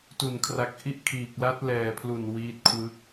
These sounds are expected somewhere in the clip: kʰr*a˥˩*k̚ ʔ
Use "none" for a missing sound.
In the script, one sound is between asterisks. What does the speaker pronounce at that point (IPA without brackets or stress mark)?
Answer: a˨˩